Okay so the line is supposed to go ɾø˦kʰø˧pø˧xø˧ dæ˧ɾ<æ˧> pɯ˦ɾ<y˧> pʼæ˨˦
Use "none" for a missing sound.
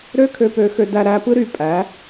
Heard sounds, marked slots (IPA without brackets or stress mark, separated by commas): æ˧, y˦˨